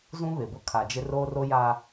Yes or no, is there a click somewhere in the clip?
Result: no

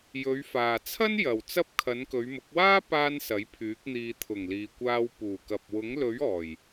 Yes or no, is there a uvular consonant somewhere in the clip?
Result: no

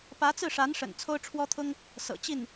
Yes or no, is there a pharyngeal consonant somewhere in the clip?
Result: no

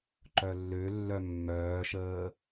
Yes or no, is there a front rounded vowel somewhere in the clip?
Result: yes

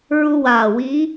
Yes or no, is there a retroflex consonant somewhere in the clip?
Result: no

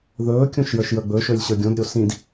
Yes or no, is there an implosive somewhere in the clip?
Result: no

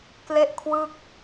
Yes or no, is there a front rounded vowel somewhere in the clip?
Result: no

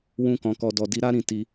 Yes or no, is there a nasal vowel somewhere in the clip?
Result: yes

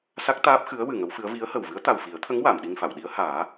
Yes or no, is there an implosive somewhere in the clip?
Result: yes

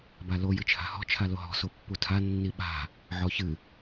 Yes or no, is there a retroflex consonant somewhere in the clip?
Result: no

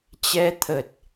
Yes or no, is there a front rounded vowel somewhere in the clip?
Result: no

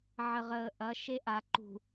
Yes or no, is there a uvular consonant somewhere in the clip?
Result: yes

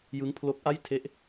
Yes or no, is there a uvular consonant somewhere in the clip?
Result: no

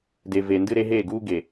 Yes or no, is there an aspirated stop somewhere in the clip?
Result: no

